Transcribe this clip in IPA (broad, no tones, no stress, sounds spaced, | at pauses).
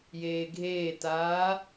j eː ɡʱ eː t aː